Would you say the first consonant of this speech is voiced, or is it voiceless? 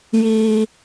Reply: voiced